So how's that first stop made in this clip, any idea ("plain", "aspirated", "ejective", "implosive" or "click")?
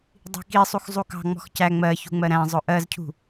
plain